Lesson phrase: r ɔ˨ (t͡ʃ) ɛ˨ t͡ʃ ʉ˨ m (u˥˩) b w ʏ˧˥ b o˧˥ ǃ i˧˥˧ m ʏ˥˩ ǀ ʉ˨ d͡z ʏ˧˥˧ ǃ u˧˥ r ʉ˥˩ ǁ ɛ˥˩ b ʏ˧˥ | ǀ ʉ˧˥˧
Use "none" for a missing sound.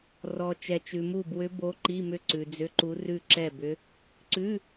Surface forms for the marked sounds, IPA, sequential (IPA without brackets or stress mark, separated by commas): t͡ʃ, u˥˩